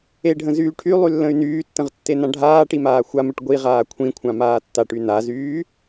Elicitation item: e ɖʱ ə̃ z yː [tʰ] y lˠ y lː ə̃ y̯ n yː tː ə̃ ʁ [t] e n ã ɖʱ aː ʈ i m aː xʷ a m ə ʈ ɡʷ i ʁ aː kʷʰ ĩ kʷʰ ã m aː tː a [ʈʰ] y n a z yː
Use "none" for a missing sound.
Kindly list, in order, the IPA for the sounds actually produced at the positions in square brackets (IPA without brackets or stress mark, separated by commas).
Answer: ʈʰ, tː, ʈ